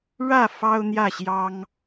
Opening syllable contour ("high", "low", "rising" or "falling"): falling